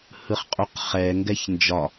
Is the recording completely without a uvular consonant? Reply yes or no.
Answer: no